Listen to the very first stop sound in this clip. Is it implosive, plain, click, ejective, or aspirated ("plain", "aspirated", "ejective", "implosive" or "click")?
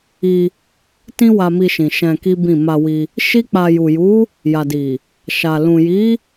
plain